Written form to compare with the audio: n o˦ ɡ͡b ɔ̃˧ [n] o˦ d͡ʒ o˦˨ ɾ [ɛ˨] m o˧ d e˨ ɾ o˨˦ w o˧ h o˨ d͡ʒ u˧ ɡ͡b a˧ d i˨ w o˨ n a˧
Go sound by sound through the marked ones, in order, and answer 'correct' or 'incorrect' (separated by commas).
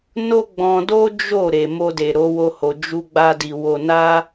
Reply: incorrect, incorrect